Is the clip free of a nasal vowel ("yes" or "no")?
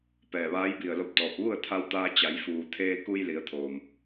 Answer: yes